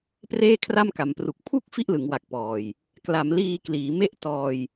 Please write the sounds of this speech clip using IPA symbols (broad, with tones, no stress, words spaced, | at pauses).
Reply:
preː˥˩kʰra˥˩mka˩˦mpru˨˩k̚ pʰu˥˩k̚ fi˥˩ʔlɯ˩˦ŋwa˨˩k̚ pɔː˨˩j | kla˩˦m liː˧kliː˩˦ me˥˩ʔ tɔː˧j